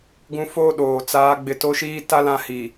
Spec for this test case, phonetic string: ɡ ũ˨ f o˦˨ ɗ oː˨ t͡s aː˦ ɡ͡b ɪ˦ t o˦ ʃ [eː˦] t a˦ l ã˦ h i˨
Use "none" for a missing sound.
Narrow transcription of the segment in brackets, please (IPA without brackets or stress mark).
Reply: iː˦